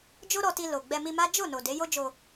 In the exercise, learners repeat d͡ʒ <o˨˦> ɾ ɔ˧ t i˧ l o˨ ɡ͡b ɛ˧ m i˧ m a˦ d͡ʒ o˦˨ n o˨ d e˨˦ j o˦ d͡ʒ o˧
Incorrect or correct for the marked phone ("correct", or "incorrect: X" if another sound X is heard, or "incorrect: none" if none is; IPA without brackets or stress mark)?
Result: incorrect: o˦